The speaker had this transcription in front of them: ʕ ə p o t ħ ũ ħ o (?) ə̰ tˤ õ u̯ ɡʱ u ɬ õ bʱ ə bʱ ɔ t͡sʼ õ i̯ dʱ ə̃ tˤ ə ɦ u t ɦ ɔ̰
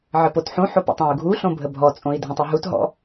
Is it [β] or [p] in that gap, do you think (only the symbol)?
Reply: p